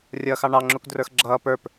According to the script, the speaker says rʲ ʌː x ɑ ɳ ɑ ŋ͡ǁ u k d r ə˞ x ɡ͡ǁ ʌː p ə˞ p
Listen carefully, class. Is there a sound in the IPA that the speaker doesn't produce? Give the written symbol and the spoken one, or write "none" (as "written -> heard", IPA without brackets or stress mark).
none